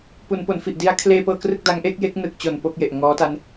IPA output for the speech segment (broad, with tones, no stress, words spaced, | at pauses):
pu˩˦npo˩˦nfi˨˩ʔdi˦˥a̯ kʰleː˧pɤː˧krɯ˥˩k̚ da˦˥ŋʔe˦˥k̚ je˦˥k̚nɯ˨˩k̚t͡ɕo˨˩n po˥˩k̚je˨˩ʔ ŋɔː˦˥ta˦˥n